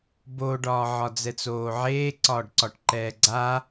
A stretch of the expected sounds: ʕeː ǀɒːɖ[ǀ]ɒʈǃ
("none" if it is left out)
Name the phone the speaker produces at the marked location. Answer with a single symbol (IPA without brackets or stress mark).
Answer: ǀ